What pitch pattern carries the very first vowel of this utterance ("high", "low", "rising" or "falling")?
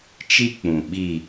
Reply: high